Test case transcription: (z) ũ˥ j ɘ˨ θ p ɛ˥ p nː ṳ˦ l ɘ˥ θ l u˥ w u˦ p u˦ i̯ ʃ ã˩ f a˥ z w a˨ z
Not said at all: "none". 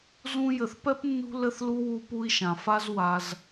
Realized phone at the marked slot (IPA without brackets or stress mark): z